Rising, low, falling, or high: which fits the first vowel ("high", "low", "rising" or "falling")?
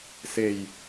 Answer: low